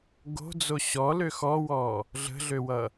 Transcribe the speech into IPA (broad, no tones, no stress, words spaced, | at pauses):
ɡo̤d͡zo ɕɔlø xɔwɔ | ɮə̤ɮøwʌ